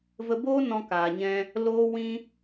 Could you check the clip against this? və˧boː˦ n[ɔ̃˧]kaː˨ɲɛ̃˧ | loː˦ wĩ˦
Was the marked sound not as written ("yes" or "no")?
no